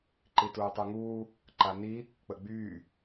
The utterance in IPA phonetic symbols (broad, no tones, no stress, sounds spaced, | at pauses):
ǃ i t uː tˤ u ŋ uː | ǃ a n i | k͡p ə ɡ͡b yː